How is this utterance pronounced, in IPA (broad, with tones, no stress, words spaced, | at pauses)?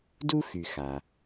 du˥xy˩ xa˩